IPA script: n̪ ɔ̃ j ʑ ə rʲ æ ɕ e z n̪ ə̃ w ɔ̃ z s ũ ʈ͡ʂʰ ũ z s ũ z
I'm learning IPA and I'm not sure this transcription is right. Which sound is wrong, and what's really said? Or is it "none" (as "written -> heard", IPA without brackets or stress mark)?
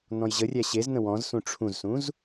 none